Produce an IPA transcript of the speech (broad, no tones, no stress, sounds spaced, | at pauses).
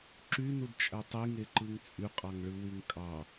ǁ y n u d t͡ʃʼ æ tˤ i ŋ e ǃ ɯ ŋ t͡sʼ y qʼ ɑ ŋ ɭ ɯ w y ŋ kʼ ɑ